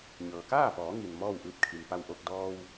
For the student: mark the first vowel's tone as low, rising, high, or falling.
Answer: low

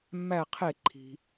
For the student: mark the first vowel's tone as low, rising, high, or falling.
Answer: falling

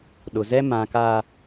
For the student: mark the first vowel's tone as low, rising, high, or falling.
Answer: low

